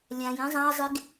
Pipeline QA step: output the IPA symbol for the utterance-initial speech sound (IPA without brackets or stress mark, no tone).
lʲ